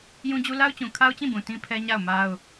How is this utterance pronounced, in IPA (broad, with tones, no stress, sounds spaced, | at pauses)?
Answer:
j ũ˦ d͡ʑ u˦ l a˦ ʊ̯ t͡ɕ ũ˨ kʰ a˦ ʊ̯ t͡ɕ ĩ˦˨ b ũ˨ t ĩ˦ pʰ ɛ˦ ɲ a˦˨ ʊ̯ m a˦ ʊ̯